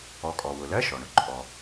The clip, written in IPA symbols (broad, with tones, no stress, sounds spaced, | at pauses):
ɔ˩˧ kʼ ɔ˩ w ʊ˩ l ɜ˧˥˧ ʃ ɔ˩ ɳ ʊ˥ ǃʼ ɔ˩